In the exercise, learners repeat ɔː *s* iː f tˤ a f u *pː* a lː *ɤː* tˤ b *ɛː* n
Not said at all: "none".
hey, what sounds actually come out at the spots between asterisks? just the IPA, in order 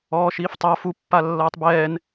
ʃ, pː, ɤː, ɛː

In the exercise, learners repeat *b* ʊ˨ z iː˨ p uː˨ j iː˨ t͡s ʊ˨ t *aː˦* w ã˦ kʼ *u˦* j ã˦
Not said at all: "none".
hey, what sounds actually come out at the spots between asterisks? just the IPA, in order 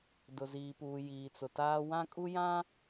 d, aː˦, u˦

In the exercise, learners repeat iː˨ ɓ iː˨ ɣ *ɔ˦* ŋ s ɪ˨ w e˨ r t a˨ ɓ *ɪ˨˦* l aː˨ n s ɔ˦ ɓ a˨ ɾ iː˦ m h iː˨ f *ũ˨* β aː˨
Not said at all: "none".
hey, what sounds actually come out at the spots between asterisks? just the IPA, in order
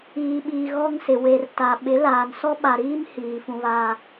ɔ˦, ɪ˨˦, ũ˨

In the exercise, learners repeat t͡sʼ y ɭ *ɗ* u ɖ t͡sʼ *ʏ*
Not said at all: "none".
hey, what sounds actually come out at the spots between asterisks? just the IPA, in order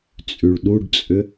ɗ, ʏ

